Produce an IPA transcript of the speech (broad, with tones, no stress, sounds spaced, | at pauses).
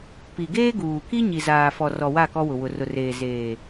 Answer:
p i˨ ɡ eː˦ ɡ uː˨ k i˦ ɲ i˨ z aː˨ f ɔ˨ r ɔ˨ w a˦˨ k ɔ˦ w ʊ˨ w ʊ˨ r ʊ˨ r eː˨ z eː˨